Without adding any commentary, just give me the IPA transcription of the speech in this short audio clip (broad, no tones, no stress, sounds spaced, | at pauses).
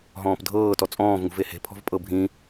ɦ ɔ̃ː p dʱ ɤː t ɔ t͡sʼ ɔ̃ː v ŋ ṳ v e h e̤ pʰ ɔ̤ v pʼ ɤ bʱ ĩ